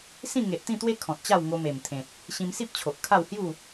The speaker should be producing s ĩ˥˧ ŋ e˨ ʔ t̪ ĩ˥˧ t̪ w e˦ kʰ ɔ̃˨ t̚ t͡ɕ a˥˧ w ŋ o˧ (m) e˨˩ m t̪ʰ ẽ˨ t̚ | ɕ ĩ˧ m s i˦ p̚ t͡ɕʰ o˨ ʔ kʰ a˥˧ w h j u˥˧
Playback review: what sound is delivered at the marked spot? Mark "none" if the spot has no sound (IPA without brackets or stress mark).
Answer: m